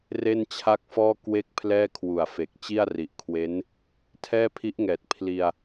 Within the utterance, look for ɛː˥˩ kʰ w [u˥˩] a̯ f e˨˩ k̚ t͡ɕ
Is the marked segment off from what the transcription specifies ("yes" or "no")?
yes